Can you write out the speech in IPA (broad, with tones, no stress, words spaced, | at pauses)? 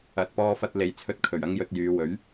ɐ˨t̚pɔː˧fɐ˧t̚ le˨jt͡sʰɵ˧t̚kʰɵ˨˩ɥ ɐ˥ŋjɵ˧t̚jyː˨˧ wɵ˨˥ɥ